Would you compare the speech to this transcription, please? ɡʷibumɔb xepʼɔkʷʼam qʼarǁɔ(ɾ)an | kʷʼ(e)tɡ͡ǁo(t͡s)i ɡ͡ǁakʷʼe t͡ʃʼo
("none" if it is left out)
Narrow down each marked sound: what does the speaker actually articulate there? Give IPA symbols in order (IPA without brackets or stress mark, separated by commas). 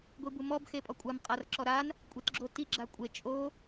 ɾ, e, t